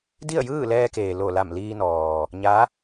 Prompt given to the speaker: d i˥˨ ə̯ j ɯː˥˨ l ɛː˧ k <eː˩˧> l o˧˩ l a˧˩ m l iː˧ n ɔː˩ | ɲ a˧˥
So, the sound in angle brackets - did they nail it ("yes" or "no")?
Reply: no